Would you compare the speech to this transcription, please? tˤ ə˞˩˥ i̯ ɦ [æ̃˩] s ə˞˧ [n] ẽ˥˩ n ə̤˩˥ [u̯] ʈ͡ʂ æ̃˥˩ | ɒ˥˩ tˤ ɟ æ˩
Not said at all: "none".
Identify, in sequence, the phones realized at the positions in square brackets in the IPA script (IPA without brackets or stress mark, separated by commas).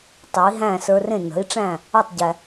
æ̃˥˩, r, i̯